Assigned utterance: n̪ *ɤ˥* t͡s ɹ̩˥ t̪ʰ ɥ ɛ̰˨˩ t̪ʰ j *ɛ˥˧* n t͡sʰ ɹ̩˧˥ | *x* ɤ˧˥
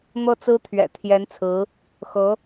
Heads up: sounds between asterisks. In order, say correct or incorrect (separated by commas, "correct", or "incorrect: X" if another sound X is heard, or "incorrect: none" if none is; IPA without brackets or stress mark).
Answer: correct, incorrect: ɛ˧˥, correct